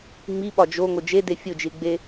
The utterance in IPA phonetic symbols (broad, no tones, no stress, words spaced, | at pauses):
ŋ͡mi ɓɒd͡ʒo ŋod͡ʒede fʲod͡ʒilɡ͡be